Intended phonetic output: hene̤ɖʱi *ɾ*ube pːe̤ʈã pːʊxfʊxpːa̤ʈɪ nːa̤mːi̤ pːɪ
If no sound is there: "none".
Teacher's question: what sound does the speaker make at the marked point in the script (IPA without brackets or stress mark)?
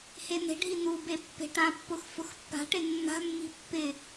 n